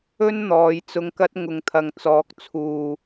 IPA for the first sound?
ɵ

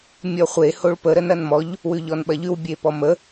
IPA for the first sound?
mʲ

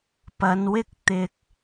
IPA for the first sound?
p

